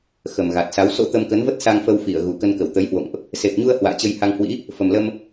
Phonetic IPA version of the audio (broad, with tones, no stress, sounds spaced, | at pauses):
x ə˨˩ m ɣ a˨˩ t̚ s a˨˦ w s o̰˧˥ t̪ ə˧ m k ə˨˦ n v ə˦˥ t̚ s a˧ ŋ f ə˧ w f i˧˩ ə̯ ɣ u˨˩ k ə˧ n k ə˧˩ w t̪ ə˨˦ j h w o̰˧˨ ŋ ʔ | s e˨˩ p̚ ɲ u˧ ə̯ h w a̰ː˧˨ t͡ɕ ə˧ j h a˧ ŋ h w ḭ˧˥ | f ə˨˩ m l ə˧ m